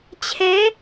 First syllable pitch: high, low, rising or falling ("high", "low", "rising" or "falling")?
rising